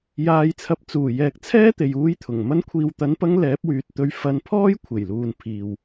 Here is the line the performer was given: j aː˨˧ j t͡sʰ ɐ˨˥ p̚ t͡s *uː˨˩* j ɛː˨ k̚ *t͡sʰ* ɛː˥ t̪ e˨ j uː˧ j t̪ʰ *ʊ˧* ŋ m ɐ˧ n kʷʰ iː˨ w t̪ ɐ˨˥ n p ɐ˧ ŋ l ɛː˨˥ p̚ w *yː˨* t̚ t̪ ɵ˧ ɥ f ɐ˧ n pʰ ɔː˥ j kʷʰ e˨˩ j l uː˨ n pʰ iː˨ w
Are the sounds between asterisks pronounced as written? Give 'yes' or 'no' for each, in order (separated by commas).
yes, yes, no, yes